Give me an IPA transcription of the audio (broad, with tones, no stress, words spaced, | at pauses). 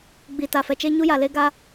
ɡ͡bi˨ta˨fɛ˨t͡ʃe˦ ɲu˦ja˨le˦ ɡa˦